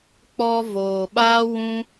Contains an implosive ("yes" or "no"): yes